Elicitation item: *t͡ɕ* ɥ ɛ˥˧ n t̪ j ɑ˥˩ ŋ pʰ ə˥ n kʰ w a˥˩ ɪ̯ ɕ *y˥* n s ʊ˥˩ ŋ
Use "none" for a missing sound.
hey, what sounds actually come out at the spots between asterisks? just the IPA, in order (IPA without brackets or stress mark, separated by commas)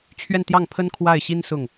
t͡ɕʰ, i˥